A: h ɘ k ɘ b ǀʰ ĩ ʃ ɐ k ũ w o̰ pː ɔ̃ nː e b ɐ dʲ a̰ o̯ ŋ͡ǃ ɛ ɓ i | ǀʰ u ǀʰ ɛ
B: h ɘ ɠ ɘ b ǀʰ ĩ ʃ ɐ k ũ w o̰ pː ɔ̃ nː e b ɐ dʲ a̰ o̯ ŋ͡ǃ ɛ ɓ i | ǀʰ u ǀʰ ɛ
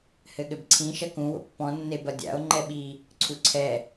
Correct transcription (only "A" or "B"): B